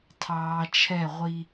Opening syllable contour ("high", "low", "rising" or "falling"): low